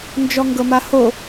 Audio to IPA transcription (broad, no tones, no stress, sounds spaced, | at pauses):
n d͡ʒ ɔ ŋ ɡ ɤ m a h o